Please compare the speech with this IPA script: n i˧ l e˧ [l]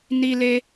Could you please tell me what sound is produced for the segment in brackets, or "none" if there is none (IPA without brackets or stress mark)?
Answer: none